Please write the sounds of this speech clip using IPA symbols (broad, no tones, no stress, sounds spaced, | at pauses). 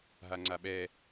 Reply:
ɦ a ŋ͡ǀ a ɓ ɛ